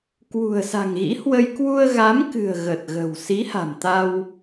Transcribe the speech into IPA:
kwṳ˨˩ə̯sa̤˨˩ŋɣḭ˧˥hwə˧j kwu˧ə̯ ɣa˨˦mkɨ̤˨˩ə̯ ɣə˨˩t̚ɣə̤˨˩w si˨˦ha̤˨˩m t̪a˧w

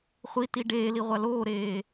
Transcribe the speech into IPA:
χʷiti ɖeːliʁʷa loːɾeː

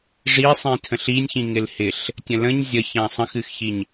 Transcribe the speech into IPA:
ʐisˤĩ tʰə̃ɬinʲçĩ ŋɪlhɪɬ | tʲə̃lə̃ɲ zʲəçã sˤə̃xɨxçiɲ

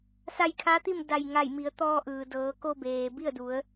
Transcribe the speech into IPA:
sa˧jkʰa˧˥t̪i˥˨m da˧˩jŋa˧˩jmi˩˧ə̯ t̪ɔː˧ʔɯː˩ dɤː˩˧ko˧beː˩ bi˥˨ə̯du˩˧ə̯

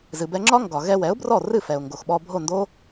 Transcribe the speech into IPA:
zɨ˩bɛ˧ŋ͡ǁɒ˥ŋɡɒ˩ ɣɛ˧wɛ˩˥ʊ̯brɔ˥˩rɨ˥˩ fɛ˩ʊ̯ŋɡo˩xɓɔ˧ bʱo˥˩ndo˥

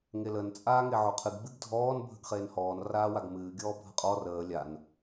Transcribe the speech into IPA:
ŋelən t͡sʼaːŋeʕoqʰɨɡ ɡ͡bɨɡdʱɔːn bʱəɡχeːnhɔːn raːwaɡmɨː ɡʲɔːbʱəqʼɔ rəː lʲan

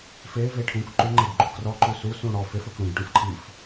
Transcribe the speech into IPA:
feve ʈʰũk ǃuŋ͡ǃeɖɡ͡ǃu krɔǃu susũ ɽɔ fefɵk ɽũɡʈũf ǃʰif

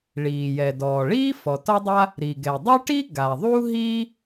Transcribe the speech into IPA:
ɭiː˩jɛ˩ dɔː˩ɭiː˥ fɔ˩tɒ˥dˤa˥ | ɾi˩ɡɛ˩dˤo˥ʈi˥ ɡa˩ðˤu˥ɦi˥

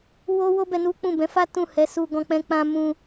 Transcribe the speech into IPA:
wo˦wo˦bɛ˧ nu˦k͡pũ˦˨ bɛ̃˨˦fa˦ tũ˦˨hɛ˨˦ su˧ɡɔ̃˧k͡pɛ̃˧k͡pã˧ mũ˦

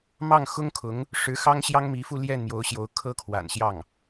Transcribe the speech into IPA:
mɑ˥˩ŋxʊ˥ŋkʰʊ˧˥ŋ | ʂɻ̩˧˥xɑ˥ŋɕjɑ˥ŋmi˧˥ fu˥˧ ljɛ˥˩nmjo˧˥ʊ̯ɕjo˧˥ʊ̯ kʰɤ˥kʰwa̰˨˩nɕjɑ˥˩ŋ

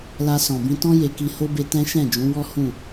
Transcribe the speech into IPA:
la˧sɔ̃˨bĩ˧tɔ̃˦ je˧ki˧ho˦be˧ tɛ̃˦ʃɛ̃˦˨d͡ʒũ˨˦wɔ˦ hũ˦˨

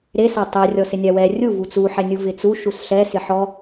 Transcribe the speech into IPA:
ɾesa tˤɛ rʲɔsɪnʲawɛ rʲu vut͡suħɛnʲu vɪt͡su ʃusɬɛsɪ ħɔ

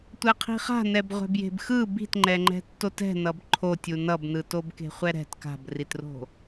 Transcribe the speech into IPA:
tʷɛqʰi̤χa̤ nɛbʁʷɛ̤bje̤bxɯ bi̤tŋ͡ǃɛŋ͡ǃɛ̤ tːotɛ̤nʌb ǃʰo tʲunʌbnɯtob ke̤χʷɛɾɛ̤t ka̤britro̤

